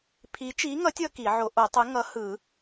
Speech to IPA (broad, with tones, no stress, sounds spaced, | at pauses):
pʰ i˨˥ t͡ʃ i˨˥ ŋ ʌ˨˥ tʲ ʌ˨˥ k i˨˩˦ ʕ o˨˥ ʔ o˨˩˦ tˤ ɯ˨˥ ŋ ʌ˨˥ h ɯ˨˩˦